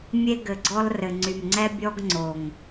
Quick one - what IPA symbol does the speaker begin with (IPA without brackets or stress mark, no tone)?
mʲ